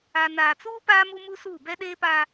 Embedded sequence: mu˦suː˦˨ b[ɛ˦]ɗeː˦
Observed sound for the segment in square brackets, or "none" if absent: ɛ˦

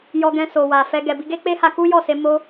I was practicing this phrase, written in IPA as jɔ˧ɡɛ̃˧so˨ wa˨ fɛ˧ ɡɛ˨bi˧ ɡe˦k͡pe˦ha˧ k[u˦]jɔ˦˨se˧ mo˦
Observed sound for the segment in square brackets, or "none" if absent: u˦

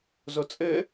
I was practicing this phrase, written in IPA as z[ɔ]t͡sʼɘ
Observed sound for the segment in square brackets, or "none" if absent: o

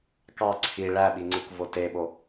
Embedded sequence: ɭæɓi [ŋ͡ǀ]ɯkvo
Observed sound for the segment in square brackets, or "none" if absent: ŋ͡ǀ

